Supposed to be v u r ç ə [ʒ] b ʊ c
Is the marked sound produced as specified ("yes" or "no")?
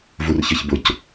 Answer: no